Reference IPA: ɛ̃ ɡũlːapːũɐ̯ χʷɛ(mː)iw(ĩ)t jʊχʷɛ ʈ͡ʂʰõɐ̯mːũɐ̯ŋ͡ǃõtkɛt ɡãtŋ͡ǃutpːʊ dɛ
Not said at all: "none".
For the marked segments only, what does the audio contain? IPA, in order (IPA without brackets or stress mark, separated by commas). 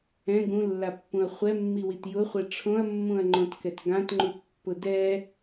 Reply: mː, i